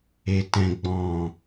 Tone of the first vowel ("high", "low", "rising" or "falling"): low